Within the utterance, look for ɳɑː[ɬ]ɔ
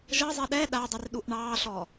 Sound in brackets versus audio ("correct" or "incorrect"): correct